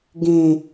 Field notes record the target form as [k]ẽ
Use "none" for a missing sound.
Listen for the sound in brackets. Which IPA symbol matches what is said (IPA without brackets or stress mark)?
ɡ